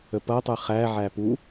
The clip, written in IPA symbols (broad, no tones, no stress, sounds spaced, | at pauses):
ə p ʌ tˤ ɨ χ æ ʕ æ p u